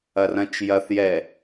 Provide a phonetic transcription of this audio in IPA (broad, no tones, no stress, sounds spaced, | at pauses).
ɐ r ɐ̃ t͡ʃ j ɐ θ j ɛ